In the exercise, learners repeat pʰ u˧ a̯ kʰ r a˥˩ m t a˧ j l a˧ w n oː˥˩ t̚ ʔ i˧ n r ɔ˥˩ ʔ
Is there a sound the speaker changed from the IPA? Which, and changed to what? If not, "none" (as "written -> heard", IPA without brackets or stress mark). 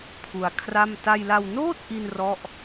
none